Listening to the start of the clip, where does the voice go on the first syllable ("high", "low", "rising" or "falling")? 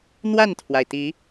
falling